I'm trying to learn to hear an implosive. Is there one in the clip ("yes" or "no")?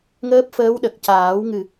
yes